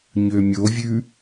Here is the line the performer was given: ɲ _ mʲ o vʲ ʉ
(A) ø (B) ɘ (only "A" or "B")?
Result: A